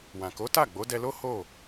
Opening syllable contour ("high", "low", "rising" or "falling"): low